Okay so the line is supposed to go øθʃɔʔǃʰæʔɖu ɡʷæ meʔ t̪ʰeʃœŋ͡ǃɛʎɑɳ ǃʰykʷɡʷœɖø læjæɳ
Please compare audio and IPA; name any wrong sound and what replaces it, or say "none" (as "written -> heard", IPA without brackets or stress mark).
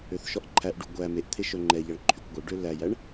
none